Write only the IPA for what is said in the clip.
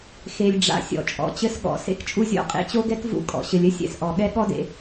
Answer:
x e˩ lʲ ɖ͡ʐ a̰˩ sʲ ɔ̰˩ t͡ʃʼ ɔ̰˩ t͡ɕ ɘ˧ s ɠ ɔ̰˩ s ḛ˥ k t͡ʃʼ u˧ zʲ ɔ̰˧ qʼ ḛ˧ t͡ɕ o˥ ɡ ɛ˥ k v ṵ˧ kʼ ɔ̰˩ ɕ ɘ˩ lʲ ɘ˥ sʲ ɛ̰˧ s ʔ ɔ˩ ɠ ɛ˥ ɠ ɔ˥ d ḛ˧

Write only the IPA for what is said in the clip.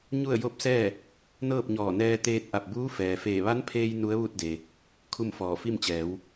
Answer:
ɲ u˥˨ ə̯ j o˥˨ p̚ s ɛː˥˨ | n ɤː˥˨ p̚ ɲ ɔː˧˩ n ɛː˧ t̪ eː˧ t̚ ʔ a˧˩ p̚ b uː˧˥ f ɛː˩ f eː˧˩ ʋ a˧˥ n pʰ eː˧ j n u˧˥ ə̯ ʋ u˥˨ t̚ d e˩ | kʰ u˥˨ m f ɔː˧˩ f i˥˨ m t͡ɕ ɛː˩˧ w

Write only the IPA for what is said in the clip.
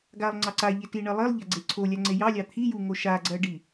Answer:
ɡ a lˠ ŋ͡ǀ ɑ ǀ a ʎ e t i ɳ ɜ lˠ i lˠ ʎ a ɡ͡ǀ e ǀʰ o lʲ a ŋ͡ǀ e j ɑ lʲ ɑ t̪ʰ i j u ŋ o ʃ a ɡ͡ǀ ɜ ɖ i

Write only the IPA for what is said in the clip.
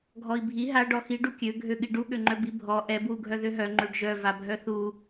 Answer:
ɡʱ ɔ i̯ bʱ i ɦ a ɖ ɔ x i ɖ u kʲ ø ɡʱ ø ɠ i ɖ u ɠ ø ŋ͡ǃ œ b i bʱ ɔ ʔ ɛ b w u ɡʱ œ ð ø ɦ œ ŋ͡ǃ ø ɖ ʒ œ v a bʱ œ θ u

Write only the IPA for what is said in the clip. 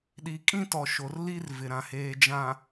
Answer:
ɗ i˨ kʼ ĩ˦ t ɔ˨ ʃ o˨ r l i˦ r v ɪ˨ ɾ ã˨ h eː˨ d͡ʒ ã˨

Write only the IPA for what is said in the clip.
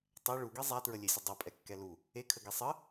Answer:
tˤ ɛ ɭ u ɡ i zˤ æ t ɹ ə lʲ e sʲ ə dˤ i pʼ ɛ kː ɛ l u | e kʰ ə ɡ i sˤ ə

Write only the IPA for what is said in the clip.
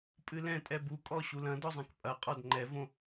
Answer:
pʼ ɨ l ɛ̃ tʼ ɛ b u kʼ ɔ ɕ u l ɐ̃ d ɔ zˤ ɛ̃ k pʼ ɐ qʼ ɔ d ŋ͡ǃ ɛ v õ

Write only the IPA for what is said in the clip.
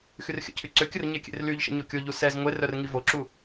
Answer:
x y r xʲ ə̰ cʰ y ǀ ø kʲ ə r ɲ e kʲ ḛ r l y ʎ ʃ ə̰ ɲ o kʲ o ʎ u s ɛ z ŋʷ e r œ r ŋ i v o ǁ u

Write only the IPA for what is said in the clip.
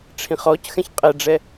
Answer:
ʈ͡ʂʰ ĩ χ ɔ c x ɛ̃ ç qʼ ɛ ɖ͡ʐ ɛ

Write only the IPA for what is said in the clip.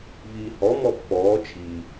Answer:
v iː h ɔ m ɔ pː ɔː t͡ʃʰ i

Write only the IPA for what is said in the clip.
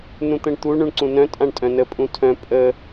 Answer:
n ũ t̪ ə̃ ɳ t̪ u ɳ ũ ɳ ǀ ũ n œ̃ tʼ ã ɳ tʼ œ̃ n ə pʼ ũ tʰ œ̃ pʼ ə

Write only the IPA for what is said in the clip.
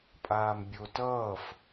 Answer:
pʼ aː m bʲ o t ʌː f

